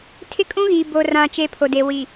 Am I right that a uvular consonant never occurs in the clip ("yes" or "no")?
yes